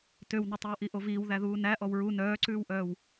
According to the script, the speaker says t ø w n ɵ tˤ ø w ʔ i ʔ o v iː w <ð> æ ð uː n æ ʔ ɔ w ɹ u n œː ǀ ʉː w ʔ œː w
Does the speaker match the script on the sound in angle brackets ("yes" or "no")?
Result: yes